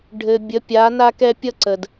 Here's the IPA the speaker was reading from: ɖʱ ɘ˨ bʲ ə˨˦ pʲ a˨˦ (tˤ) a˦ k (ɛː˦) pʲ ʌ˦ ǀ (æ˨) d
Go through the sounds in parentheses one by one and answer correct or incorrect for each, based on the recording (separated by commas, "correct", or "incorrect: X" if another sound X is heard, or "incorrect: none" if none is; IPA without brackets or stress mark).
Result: incorrect: n, incorrect: ɛ˦, incorrect: ə˨